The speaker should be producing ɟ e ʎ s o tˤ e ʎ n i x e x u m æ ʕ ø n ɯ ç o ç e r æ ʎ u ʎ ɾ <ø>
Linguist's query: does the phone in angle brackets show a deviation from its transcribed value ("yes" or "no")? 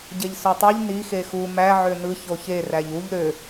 no